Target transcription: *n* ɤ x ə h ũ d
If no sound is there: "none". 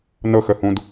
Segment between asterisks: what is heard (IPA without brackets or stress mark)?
n